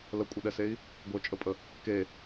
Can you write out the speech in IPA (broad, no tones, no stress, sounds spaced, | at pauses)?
l ə kʷʼ ə ɗ ɛ s e i̯ | ɡʷ ə˞ t͡ʃʼ ə pʼ ə | k e